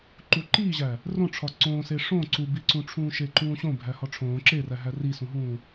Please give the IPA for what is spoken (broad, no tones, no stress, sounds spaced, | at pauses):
ǃ u ǃ iː ʑ æ | r õ ʈ͡ʂʰ ɒ ǀ õː s e ʂ õ ǀ u b i ǀ ũ ʈ͡ʂʰ ũː ʃ e ǃ ũː ɕ õ bʱ æ h ɒ ʈ͡ʂʰ õː ǁ e r æ ɦ æ r i s ũ ɦ ũː